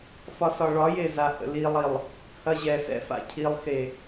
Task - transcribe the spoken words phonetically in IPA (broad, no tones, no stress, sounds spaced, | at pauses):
f ɒ s ɒ ɭ ɒ j e z a h ə̰ l i lˠ i lˠ | h ɐ ʑ ɛ s ɛ̰ f a̰ cʰ i lˠ x e